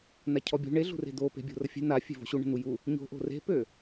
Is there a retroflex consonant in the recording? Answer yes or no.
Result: yes